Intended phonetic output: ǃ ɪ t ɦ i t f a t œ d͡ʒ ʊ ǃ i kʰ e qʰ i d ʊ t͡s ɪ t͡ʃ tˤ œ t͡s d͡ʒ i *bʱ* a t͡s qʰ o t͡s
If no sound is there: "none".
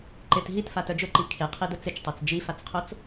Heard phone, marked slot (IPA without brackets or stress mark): f